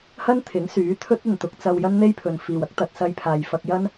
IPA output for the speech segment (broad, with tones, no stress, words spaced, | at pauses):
hɐ˥nt̪ʰɪ˨˥ŋ syː˨˥t̪ʰɵ˥t̚ɐ˨n t̪ʊ˨˥k̚t͡sɐ˧w jɐ˥nn̪e˥jpʰɵ˨n fiː˨wɐ˥k̚ t̪ɐ˧t̚sɐ˥j pʰaː˨jfɐ˧k̚jɐ˥n